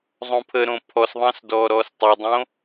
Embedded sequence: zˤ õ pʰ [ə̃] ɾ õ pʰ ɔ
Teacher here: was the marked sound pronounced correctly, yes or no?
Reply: no